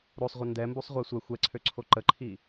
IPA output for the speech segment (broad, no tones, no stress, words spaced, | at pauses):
ɾosˤʁʷɪ ndɛmbusˤʁʷɛ sʷɛ xʷɛǀʰøǀʰo ǃəǃʰi